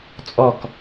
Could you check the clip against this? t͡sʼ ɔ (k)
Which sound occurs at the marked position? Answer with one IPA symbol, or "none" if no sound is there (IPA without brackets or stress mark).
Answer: k